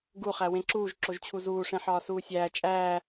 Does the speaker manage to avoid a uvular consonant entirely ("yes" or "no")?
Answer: no